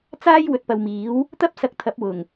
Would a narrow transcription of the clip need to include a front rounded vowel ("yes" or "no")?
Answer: no